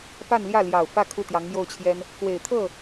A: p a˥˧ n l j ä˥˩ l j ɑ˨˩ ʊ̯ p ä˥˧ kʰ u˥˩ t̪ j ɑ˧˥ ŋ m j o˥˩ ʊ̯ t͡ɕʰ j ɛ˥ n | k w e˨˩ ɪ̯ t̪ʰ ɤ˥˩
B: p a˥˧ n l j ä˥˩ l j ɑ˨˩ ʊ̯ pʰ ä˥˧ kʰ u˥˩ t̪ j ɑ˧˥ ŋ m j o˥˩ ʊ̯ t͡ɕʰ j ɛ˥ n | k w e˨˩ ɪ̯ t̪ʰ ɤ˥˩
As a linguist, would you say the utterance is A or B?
A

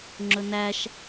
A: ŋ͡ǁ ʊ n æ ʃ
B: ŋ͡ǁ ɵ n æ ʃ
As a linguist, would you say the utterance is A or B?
B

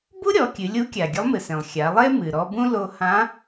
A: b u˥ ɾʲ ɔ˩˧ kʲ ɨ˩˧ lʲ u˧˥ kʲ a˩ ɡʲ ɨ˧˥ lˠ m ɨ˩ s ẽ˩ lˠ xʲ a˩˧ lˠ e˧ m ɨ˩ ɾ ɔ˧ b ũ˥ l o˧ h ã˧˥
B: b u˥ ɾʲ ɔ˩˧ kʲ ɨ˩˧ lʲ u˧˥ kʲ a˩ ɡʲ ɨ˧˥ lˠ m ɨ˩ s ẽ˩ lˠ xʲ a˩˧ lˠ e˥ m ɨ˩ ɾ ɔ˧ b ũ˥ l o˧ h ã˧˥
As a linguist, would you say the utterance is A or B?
B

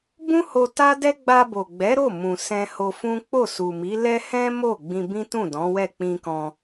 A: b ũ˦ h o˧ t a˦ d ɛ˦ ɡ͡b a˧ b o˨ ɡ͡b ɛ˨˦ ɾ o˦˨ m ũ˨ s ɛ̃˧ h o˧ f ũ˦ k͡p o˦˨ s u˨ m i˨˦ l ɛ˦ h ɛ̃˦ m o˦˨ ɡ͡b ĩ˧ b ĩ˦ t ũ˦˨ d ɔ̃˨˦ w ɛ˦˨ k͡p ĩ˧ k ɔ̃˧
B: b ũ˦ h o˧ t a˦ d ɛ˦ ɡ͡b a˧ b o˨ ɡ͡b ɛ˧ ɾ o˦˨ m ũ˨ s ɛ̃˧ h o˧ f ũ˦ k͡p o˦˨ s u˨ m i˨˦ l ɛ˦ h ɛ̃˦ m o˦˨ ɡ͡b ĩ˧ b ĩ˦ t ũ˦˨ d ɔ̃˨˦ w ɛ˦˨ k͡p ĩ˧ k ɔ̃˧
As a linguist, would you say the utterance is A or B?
A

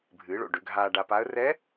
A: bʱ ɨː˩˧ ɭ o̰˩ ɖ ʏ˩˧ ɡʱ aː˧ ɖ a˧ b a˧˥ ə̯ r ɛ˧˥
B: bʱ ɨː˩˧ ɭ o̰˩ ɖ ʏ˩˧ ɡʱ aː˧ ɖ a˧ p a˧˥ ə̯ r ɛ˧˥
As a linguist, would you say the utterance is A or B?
B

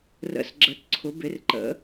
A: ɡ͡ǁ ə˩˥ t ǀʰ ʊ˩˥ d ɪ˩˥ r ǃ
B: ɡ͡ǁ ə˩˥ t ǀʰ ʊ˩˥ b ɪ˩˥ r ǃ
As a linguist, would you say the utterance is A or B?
B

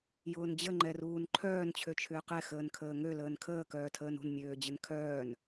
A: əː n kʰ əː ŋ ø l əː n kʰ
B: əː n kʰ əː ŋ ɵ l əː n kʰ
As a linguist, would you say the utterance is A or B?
A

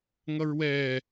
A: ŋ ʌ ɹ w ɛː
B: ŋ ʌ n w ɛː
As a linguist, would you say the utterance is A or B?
A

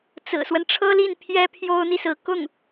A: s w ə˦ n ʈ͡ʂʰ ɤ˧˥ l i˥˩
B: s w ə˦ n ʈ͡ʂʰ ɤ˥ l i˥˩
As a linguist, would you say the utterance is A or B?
B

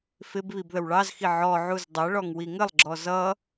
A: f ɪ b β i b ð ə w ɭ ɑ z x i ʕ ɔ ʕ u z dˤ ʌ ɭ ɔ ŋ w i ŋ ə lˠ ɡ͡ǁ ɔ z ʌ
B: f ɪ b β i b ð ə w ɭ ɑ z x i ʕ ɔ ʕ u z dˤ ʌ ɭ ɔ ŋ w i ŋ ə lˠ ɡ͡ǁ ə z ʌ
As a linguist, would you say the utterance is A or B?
A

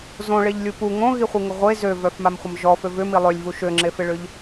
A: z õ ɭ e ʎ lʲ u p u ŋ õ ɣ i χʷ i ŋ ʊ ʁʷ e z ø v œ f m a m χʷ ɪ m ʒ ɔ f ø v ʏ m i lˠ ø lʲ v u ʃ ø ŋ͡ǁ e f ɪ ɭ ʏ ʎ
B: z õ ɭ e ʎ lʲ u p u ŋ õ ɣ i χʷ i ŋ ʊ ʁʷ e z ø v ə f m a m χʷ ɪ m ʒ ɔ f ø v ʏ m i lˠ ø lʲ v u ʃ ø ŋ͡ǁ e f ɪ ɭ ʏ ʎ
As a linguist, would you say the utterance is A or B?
A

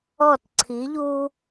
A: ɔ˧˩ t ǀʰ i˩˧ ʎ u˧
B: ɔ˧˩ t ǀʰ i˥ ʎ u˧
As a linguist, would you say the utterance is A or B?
A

